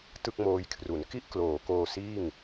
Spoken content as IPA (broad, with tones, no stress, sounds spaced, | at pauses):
t ɯ˥˩ k̚ m oː˧ j kʰ r u˩˦ n k i˦˥ ʔ k l oː˩˦ k oː˧ s iː˥˩ ŋ